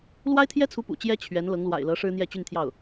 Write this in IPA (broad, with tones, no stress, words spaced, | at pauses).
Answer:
lwa˥ɪ̯t̪ʰjɛ˥t͡sʰu˧˥ pṵ˨˩t͡ɕjɛ˥ t͡ɕʰɥɛ˧˥n lɤ˧˥ŋlwa̰˨˩ɪ̯lɤ˧˥ ʂɻ̩˥n̪jɛ˥˧t͡ɕy˥˧nt̪ʰjɑ˥˩ʊ̯